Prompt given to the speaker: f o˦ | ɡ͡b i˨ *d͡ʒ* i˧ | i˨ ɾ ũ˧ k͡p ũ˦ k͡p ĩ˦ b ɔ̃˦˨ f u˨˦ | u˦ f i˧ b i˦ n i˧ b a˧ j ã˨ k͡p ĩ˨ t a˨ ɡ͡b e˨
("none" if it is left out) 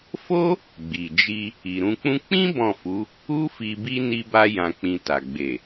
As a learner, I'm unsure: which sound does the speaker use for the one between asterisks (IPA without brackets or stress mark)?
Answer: d͡ʒ